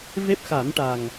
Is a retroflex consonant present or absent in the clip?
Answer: present